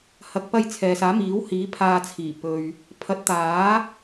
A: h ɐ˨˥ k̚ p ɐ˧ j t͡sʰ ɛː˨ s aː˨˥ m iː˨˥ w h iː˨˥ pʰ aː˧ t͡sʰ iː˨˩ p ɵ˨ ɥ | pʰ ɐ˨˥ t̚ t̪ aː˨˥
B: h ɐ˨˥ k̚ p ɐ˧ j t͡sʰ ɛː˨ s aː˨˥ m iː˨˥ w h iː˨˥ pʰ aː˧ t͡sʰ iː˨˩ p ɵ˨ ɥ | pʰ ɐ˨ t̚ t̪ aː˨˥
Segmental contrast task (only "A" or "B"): A